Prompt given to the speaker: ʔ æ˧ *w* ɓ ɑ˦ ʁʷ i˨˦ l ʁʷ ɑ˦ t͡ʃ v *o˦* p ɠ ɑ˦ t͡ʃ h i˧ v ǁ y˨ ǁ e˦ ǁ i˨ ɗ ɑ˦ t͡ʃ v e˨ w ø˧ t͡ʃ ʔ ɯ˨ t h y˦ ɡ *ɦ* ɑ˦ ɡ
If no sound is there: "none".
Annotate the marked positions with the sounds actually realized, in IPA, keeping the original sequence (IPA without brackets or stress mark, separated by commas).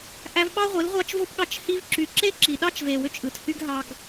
v, o˦, ɦ